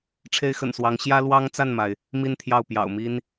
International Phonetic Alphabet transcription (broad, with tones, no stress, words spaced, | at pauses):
ʈ͡ʂʰe˥ɪ̯xə̰˨˩nswɑ˧˥ŋ ɕjä˥lwɑ˥ŋt͡sa˥˩nma˩ɪ̯ | mi˥˧nt̪ʰjɑ˥˩ʊ̯ pjɑ̰˨˩ʊ̯mi˥n